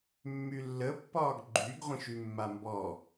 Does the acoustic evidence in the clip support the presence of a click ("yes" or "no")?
yes